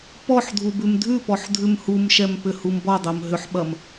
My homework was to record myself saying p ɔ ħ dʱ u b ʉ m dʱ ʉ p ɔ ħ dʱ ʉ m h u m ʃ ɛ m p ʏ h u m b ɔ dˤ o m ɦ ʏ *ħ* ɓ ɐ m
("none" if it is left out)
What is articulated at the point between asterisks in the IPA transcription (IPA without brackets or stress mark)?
ħ